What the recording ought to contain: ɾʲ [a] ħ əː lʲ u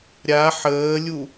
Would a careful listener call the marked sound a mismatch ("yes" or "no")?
no